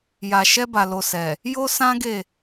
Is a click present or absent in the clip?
absent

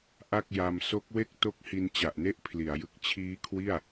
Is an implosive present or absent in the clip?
absent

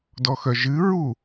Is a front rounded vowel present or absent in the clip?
present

